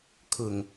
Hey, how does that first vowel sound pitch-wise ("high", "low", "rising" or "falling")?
low